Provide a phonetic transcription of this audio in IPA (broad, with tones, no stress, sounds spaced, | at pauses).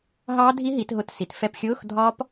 ɦ ɑː˦˥ dʱ i˦˥ ɦ i˩˧ t ɦ ʊ˧˥˧ t s i˩˧ t f ɛ˧ p xʲ ʊː˧˥˧ x dʱ ɒ˦˥ p